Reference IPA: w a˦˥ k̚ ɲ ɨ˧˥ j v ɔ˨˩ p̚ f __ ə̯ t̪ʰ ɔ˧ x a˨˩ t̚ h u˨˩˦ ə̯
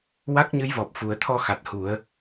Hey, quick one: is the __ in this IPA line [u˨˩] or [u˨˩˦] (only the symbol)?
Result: u˨˩